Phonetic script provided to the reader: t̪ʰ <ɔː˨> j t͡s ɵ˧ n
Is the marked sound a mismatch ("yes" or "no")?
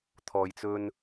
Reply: no